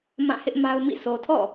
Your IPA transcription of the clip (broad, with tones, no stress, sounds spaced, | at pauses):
m ã˦˨ h ɪ˦ ʔ m a˦ ʊ̯ m ḭ˦˨ s o˨ tʰ ɔ̰˦˨